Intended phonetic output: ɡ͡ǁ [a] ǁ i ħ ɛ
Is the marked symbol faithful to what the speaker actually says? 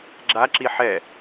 yes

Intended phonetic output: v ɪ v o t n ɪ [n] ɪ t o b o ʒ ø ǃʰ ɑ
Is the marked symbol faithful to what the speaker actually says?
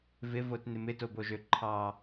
no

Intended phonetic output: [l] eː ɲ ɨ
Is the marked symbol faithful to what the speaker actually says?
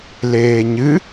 yes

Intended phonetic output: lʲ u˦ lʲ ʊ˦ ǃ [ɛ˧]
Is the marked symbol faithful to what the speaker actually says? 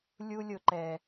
yes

